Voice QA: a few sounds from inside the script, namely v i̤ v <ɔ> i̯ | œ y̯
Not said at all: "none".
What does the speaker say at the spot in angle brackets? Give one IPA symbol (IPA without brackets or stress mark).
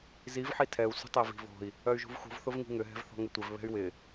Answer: ɔ̤